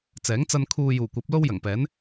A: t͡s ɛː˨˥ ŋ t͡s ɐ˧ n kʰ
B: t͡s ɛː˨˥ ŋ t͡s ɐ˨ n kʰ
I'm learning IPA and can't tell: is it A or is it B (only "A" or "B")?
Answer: A